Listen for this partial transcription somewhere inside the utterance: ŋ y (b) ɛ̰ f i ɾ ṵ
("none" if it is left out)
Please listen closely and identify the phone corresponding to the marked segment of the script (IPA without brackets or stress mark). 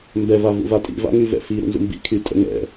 v